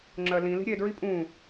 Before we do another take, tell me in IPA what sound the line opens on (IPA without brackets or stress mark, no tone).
ŋ͡ǁ